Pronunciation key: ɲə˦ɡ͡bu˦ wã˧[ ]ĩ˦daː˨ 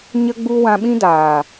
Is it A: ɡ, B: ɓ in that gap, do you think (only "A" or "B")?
B